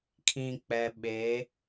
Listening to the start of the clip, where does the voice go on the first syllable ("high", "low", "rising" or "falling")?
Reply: low